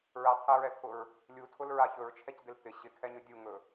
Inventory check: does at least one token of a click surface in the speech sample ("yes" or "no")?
no